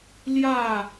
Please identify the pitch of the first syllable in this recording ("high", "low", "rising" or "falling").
falling